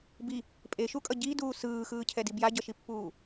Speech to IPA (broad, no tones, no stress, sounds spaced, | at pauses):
b i | pʼ e ʃ u kʼ ʌ ɟ i d uː s ɯː x ɯː cʰ ɛ d i b j a ɟ ʌ ʃ i pː uː